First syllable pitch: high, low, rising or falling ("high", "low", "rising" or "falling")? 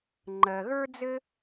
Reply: low